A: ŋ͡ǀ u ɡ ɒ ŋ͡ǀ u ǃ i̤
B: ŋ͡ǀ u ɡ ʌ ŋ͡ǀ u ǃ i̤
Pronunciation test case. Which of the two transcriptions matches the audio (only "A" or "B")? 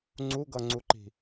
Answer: B